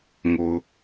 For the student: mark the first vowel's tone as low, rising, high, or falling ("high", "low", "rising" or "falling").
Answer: low